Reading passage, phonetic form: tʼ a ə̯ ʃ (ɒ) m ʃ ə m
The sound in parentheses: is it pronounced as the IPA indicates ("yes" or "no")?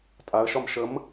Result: yes